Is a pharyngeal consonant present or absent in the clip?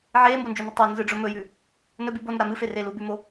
present